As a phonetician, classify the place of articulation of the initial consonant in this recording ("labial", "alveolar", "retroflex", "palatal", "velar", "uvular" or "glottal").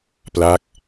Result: labial